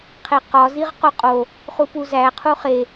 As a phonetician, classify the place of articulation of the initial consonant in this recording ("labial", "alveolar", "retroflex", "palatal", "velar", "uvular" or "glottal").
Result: uvular